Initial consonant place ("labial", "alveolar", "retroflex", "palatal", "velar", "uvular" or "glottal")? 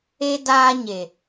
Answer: alveolar